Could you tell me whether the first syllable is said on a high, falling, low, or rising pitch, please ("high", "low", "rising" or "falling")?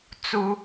high